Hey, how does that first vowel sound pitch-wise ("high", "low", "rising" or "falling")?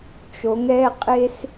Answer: rising